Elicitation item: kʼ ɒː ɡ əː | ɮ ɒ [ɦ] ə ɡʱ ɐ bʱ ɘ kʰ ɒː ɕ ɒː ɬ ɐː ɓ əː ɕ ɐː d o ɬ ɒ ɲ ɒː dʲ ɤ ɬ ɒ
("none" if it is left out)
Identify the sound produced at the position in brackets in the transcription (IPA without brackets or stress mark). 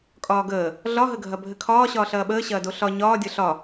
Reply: ɦ